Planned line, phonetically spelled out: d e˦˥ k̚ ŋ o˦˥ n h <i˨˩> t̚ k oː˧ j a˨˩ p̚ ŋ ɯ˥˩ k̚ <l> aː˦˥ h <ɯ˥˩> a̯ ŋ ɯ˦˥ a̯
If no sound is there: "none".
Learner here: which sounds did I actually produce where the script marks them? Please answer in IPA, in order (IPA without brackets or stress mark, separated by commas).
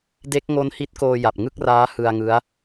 i˦˥, r, ɯ˧